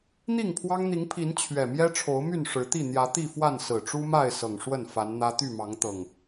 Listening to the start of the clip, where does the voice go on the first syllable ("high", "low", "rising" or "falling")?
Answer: falling